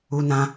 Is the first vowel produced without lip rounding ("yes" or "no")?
no